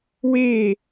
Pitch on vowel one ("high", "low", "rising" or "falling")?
falling